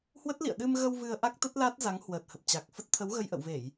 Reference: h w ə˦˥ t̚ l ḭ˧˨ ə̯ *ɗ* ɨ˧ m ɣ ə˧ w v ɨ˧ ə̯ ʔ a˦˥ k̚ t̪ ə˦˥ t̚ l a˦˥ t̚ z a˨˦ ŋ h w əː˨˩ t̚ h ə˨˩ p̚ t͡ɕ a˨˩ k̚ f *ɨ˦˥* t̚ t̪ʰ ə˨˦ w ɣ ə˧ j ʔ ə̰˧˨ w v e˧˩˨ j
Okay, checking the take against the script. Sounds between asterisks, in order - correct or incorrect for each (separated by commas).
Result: correct, incorrect